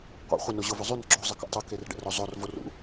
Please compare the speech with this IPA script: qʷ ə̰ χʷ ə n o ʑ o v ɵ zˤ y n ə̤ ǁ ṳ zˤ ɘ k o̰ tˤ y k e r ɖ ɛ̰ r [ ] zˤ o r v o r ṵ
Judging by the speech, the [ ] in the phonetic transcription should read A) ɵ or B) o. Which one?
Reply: B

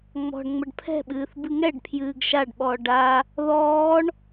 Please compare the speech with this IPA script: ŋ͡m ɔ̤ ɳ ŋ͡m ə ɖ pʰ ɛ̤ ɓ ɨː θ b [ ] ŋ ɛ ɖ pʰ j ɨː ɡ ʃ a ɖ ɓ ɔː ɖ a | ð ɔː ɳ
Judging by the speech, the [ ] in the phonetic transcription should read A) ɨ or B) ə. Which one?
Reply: A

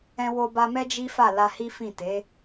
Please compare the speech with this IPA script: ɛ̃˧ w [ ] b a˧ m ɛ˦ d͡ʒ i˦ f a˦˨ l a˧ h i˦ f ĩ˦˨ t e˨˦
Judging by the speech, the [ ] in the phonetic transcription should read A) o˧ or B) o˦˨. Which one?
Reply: A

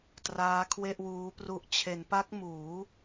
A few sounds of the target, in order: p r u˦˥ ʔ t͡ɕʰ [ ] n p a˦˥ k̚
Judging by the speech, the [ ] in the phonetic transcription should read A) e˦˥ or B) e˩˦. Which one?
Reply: B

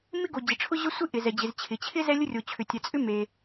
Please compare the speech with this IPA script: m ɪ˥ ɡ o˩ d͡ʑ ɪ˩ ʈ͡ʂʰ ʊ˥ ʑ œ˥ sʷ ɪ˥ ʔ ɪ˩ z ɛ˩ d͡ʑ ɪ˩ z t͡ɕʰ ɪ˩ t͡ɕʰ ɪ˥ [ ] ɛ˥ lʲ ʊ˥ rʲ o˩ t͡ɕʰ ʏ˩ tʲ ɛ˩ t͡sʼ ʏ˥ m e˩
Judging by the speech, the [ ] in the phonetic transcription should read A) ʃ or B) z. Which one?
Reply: B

